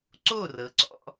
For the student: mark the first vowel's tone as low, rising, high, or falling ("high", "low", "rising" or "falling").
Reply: falling